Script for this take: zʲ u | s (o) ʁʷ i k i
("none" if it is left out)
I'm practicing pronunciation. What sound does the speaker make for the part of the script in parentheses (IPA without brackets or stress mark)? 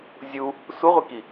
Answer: u